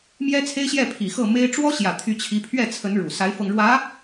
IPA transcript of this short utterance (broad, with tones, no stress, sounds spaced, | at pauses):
m j ɛ˥ t͡sʰ e˥ ɪ̯ ɕ j ɛ˥˩ pʰ i˨˩ x ɤ˥˩ m e˥ ɪ̯ ʈ͡ʂ w ɔ˥ ɕ j ä˨˩ t̪ʰ y˧˥ t͡ɕʰ i˧˥ pʰ ɥ ɛ˥˩ t͡sʰ ə˧˥ n ɻ u˨˩ s a˧˥ ɪ̯ f ɤ˧ ŋ ɻ w ä˧˥